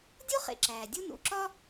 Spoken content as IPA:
dʲ o˥ χ ḛ˩ ǁ æː˩ dʲ u˥ n ṵ˩ ǁ ɒ˥

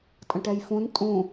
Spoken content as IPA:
tʼ ə̃ ʈ ɛ j f ũ n tʼ ũ

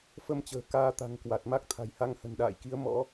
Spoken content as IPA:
f ə˧ m t͡ɕ ə̤ː˨˩ k aː˧ t̪ a̤˨˩ ŋ k w a˨˩ t̚ m a˦˥ k̚ t̪ʰ a̤˨˩ j h a˧ ŋ h ə̤˨˩ n ɗ a̰ː˧˨ j k i˨˦ ə̯ m ɔ̰˧˥

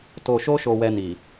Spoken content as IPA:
t o˧ ʃ o˦ ʃ o˧ w ɛ˧ n i˨

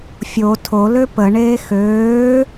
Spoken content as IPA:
fʲ o tʰ o l ø p ə ɳ eː x øː

